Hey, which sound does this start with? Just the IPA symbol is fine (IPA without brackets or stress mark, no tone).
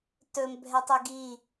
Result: t